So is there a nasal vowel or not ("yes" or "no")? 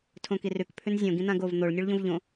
yes